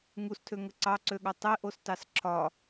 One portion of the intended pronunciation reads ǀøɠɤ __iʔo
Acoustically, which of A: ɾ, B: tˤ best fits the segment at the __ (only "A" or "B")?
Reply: B